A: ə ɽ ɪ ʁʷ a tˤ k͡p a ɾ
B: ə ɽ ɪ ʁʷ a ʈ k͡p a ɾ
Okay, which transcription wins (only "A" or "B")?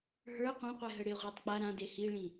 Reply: A